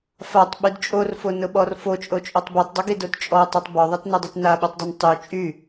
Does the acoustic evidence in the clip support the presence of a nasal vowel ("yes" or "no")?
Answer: no